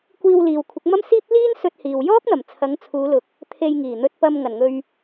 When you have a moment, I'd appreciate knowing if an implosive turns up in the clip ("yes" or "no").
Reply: no